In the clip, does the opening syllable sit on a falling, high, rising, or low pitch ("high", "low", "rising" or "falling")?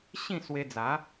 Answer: falling